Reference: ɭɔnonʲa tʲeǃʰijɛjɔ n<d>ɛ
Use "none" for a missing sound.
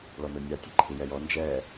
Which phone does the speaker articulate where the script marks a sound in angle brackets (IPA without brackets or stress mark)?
d͡ʒ